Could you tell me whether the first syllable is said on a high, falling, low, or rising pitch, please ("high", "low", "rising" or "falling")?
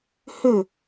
falling